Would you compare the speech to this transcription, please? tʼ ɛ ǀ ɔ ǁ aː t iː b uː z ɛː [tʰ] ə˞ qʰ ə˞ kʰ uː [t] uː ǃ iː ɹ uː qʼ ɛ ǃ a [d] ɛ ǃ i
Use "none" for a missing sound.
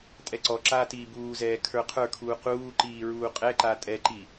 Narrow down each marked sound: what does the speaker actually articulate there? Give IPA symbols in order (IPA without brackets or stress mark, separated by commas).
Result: kʰ, q, tʼ